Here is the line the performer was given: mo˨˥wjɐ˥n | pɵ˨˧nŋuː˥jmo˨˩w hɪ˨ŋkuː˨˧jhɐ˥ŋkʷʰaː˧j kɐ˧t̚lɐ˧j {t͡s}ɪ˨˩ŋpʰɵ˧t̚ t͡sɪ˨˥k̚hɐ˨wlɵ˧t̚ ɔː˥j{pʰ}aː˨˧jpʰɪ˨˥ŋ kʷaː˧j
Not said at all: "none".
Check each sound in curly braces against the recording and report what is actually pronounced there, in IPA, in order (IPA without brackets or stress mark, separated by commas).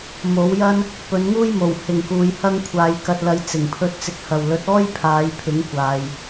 t͡s, pʰ